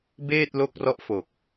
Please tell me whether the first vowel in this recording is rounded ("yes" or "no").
no